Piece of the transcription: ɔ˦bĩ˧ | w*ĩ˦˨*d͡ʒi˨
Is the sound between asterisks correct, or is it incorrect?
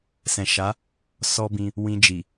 incorrect